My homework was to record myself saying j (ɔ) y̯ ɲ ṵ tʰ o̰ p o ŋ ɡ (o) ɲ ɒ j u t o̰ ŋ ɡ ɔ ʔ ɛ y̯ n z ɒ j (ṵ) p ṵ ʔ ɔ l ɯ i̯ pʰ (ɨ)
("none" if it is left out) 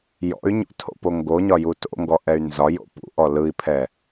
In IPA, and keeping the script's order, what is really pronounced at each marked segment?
ɔ̰, o, o̰, ɛ

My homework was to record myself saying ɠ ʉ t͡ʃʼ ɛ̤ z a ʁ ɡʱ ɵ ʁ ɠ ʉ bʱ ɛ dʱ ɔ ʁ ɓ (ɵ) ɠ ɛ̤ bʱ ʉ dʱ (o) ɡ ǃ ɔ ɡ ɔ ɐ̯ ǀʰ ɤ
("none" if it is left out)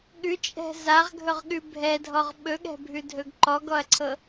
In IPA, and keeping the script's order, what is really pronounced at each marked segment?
ɵ, ɵ

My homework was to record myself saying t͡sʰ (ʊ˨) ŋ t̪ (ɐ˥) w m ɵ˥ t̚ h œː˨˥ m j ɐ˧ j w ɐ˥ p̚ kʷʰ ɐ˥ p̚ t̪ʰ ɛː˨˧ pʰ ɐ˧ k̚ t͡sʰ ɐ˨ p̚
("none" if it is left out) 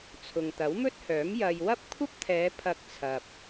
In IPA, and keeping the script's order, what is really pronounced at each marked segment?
ʊ˨, ɐ˨˥

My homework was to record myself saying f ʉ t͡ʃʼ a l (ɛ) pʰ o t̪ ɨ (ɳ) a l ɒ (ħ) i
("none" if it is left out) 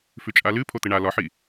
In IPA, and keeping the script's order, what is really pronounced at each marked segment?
ɨ, ɳ, ħ

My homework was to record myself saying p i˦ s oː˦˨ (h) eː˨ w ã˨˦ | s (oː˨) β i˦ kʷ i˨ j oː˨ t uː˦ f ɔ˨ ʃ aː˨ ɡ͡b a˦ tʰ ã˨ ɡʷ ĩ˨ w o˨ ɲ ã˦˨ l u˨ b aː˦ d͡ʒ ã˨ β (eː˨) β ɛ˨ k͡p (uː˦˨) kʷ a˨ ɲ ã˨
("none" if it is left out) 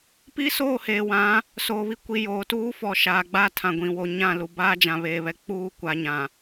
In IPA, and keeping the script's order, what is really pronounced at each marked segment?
h, oː˨, eː˨, uː˦˨

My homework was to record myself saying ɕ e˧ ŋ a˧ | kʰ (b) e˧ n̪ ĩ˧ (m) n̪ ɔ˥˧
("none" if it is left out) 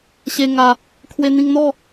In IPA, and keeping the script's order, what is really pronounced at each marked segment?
w, ŋ

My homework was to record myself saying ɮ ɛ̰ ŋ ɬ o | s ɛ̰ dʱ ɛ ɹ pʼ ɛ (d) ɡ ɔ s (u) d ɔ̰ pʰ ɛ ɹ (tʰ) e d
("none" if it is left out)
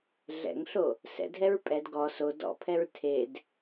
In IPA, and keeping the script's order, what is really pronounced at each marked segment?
d, o, tʰ

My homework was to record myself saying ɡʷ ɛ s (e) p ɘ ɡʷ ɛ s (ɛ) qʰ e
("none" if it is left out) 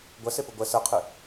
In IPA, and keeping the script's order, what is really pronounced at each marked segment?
e, ɛ

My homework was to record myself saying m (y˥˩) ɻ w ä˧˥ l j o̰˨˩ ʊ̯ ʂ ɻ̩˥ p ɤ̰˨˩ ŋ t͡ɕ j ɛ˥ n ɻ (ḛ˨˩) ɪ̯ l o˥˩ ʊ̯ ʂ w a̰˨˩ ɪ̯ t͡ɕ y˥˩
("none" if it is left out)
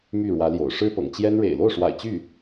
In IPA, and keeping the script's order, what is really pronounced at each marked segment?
y˥˩, ḛ˨˩

